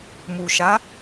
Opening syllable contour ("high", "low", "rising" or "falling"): low